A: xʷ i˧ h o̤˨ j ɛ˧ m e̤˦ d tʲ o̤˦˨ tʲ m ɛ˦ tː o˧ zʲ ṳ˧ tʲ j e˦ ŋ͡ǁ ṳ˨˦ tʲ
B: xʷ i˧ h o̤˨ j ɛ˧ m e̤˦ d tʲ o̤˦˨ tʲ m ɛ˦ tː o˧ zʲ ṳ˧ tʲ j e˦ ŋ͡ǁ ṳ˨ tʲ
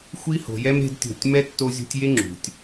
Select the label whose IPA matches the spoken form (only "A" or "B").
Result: B